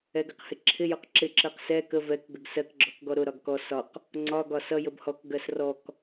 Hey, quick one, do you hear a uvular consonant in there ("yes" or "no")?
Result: yes